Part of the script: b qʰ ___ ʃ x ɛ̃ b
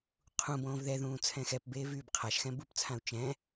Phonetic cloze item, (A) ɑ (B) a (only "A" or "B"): B